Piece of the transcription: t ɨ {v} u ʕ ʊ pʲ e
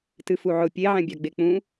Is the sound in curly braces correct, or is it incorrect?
incorrect